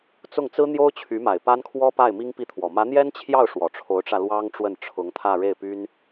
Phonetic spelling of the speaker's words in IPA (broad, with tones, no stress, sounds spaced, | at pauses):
t͡s ʊ˥˩ ŋ t͡s ɹ̩˥ n̪ j o˥ ʊ̯ t͡ɕʰ y˧˥ m a˨˩ ɪ̯ p a˥ n kʰ w ɔ˥ p a˥˩ ɪ̯ m i˥ ŋ p i˥˩ t̪ʰ w ɔ˨˩ m ä˧˥ n̪ j ɛ˥ n t͡ɕʰ j ɑ˥˩ ʊ̯ ʂ w ɔ˨˩ ʈ͡ʂʰ o˧˥ ʊ̯ ʈ͡ʂ ä˧ l w ɑ˥ ŋ ʈ͡ʂ w ə˥˩ n ʈ͡ʂʰ ʊ˧˥ ŋ t̪ʰ ä˥˧ ɻ e˥˩ ɪ̯ p y˥ n